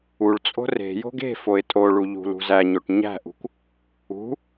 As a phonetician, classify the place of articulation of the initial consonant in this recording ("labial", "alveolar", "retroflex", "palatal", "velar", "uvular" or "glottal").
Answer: retroflex